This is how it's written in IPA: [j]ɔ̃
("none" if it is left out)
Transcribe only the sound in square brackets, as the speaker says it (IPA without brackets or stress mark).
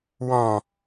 w